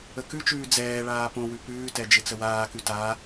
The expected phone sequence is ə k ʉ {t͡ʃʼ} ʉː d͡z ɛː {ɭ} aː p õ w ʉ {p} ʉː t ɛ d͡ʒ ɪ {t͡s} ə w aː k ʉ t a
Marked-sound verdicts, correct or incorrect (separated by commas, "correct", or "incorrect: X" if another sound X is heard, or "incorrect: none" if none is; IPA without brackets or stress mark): incorrect: t͡ʃ, correct, correct, correct